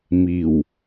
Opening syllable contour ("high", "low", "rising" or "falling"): low